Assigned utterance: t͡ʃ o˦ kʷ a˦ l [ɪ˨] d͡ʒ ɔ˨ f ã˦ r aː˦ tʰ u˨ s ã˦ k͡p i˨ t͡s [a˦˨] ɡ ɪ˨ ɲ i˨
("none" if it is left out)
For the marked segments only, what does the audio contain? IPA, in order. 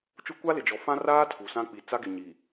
ɪ˨, a˦

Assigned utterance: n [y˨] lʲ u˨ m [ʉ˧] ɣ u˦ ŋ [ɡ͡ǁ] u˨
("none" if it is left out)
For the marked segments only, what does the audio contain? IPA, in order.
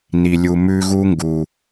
i˨, ʉ˧, ɡ

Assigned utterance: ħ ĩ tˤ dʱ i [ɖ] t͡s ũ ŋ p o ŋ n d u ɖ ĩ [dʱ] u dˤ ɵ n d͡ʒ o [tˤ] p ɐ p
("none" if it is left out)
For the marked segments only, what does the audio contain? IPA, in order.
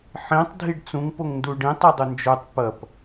ɖ, tˤ, tˤ

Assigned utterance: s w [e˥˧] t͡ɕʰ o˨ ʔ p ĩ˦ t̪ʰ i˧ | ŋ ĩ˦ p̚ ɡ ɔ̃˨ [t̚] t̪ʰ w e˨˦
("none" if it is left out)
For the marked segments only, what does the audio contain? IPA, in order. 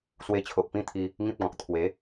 e˧, k̚

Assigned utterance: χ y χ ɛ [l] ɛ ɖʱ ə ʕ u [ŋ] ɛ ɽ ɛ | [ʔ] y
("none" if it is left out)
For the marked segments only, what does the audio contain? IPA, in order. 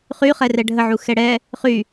r, x, χ

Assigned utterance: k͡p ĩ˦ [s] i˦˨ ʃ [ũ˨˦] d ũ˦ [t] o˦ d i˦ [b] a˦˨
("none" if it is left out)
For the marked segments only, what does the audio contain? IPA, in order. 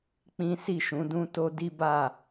s, ũ˨˦, t, b

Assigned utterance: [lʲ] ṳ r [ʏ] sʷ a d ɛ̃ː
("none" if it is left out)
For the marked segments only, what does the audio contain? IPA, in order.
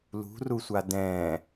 l, u

